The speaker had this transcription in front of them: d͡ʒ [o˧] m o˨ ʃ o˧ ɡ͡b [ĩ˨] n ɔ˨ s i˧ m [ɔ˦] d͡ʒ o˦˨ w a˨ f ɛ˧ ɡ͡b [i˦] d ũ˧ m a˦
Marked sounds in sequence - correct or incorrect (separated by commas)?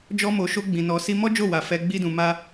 incorrect, correct, correct, correct